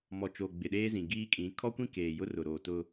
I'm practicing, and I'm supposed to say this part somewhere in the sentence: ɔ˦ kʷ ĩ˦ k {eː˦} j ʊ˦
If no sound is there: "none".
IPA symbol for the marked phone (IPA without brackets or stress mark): eː˨